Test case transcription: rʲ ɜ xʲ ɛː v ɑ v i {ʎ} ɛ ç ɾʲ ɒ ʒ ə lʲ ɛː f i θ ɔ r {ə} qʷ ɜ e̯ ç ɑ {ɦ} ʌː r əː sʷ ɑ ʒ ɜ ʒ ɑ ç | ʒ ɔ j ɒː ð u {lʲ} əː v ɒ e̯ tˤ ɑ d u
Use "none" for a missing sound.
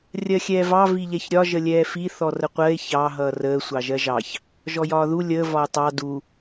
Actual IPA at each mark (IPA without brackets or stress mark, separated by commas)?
ʎ, ə, ɦ, lʲ